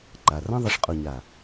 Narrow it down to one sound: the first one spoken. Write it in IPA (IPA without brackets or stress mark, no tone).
ǃ